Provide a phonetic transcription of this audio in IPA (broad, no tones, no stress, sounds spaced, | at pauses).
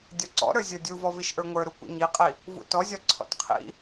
dʲ ɒ ǀ ɔ̰ ɾ ə˞ zʲ ə˞ dʲ u v ɔ v i ʃ ʔ ə˞ ŋʷ ə˞ ɾ u kʷ ḭ ɲ i qʼ i | v ṵ t ɔ zʲ ɒ ǀʰ ɔ̰ t qʰ ḭ